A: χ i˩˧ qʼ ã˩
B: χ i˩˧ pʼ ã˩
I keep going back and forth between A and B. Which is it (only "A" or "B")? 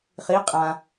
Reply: A